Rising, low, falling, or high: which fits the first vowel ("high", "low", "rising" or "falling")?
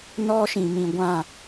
high